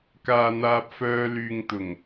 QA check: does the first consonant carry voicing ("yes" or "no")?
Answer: no